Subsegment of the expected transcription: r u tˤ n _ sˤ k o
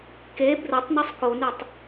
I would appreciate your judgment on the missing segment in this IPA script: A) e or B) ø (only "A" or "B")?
B